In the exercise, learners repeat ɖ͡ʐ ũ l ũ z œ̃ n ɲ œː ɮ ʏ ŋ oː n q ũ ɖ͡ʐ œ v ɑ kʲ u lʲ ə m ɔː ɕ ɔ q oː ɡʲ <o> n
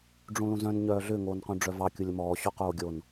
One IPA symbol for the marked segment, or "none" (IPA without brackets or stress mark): o